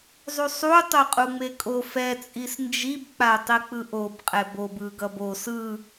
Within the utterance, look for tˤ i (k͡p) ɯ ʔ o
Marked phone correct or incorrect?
correct